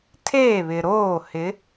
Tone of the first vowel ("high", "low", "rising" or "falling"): falling